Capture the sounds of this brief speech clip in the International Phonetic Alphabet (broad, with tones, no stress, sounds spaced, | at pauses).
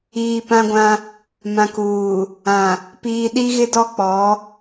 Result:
iː˨ p ã˦ ɡʷ ã˦ | m ã˨ k uː˨ | ã˨ | p iː˨ ɗ i˦ ɣ ɪ˦ d ɔ˦ k͡p ɔ˨˦